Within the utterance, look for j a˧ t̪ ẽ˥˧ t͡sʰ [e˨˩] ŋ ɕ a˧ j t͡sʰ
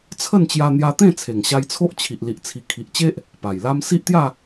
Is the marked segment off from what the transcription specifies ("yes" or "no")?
no